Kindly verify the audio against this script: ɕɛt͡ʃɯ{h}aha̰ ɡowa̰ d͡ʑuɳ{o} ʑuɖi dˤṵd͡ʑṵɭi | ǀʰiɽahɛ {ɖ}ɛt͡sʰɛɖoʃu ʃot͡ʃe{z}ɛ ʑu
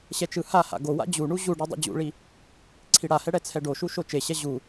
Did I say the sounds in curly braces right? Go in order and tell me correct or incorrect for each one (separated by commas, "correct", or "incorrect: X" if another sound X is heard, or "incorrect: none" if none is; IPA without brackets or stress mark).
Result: correct, incorrect: u, incorrect: ɽ, incorrect: ɕ